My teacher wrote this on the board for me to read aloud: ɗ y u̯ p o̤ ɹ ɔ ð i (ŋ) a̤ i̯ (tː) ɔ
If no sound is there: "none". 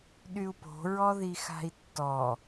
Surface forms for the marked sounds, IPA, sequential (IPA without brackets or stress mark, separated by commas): x, tː